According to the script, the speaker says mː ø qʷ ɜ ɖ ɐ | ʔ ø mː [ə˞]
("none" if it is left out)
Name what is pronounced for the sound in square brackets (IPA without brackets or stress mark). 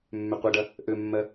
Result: ɜ